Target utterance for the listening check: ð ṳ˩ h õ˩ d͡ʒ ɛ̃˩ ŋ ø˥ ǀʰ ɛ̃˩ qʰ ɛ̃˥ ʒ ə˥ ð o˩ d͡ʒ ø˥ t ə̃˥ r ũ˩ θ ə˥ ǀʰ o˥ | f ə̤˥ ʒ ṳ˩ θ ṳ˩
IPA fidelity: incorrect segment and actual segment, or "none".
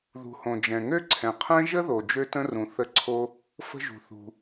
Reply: none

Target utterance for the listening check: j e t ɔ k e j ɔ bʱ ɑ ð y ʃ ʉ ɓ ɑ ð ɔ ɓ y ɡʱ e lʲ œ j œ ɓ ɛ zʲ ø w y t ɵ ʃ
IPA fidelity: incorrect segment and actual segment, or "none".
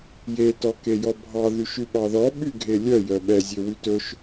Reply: none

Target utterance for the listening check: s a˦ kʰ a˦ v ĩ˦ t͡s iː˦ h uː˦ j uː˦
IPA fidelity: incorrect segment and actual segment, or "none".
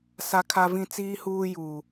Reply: none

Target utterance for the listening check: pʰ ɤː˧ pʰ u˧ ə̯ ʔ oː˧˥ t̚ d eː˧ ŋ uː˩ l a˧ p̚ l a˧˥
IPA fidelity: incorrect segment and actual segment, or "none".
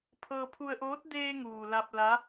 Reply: none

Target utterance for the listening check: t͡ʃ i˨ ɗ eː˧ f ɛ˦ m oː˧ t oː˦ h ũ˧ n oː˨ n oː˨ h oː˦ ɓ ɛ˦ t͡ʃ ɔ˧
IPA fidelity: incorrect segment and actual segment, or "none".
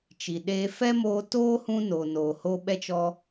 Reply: none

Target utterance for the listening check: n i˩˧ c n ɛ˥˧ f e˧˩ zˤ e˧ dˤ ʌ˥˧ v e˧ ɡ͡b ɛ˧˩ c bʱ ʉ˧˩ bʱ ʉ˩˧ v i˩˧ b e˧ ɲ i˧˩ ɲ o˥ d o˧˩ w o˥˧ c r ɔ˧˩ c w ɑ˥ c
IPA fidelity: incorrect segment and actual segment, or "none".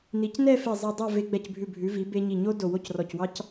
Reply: ʌ˥˧ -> ɑ˥˧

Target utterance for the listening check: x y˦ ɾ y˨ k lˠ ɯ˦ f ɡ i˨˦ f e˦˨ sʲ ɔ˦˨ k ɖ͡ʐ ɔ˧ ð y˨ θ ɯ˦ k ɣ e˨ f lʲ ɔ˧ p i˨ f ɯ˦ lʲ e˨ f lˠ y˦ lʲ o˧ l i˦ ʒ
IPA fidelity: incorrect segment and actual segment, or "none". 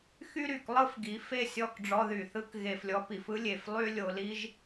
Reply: none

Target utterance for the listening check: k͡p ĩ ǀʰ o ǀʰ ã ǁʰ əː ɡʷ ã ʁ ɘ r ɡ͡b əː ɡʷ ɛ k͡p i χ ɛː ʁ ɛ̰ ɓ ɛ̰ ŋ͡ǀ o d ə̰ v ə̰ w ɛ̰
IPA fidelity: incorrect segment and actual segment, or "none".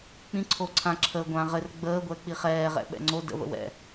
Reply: none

